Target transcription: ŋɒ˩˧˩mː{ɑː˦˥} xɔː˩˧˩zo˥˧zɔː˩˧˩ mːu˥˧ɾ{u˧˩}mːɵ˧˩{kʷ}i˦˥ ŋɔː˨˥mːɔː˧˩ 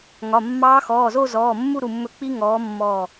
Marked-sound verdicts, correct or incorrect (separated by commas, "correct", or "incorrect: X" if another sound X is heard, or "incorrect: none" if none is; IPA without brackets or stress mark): correct, correct, incorrect: k͡p